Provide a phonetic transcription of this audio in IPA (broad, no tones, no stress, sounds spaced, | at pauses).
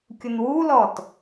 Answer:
kʲ ʊ n w u l ɔ t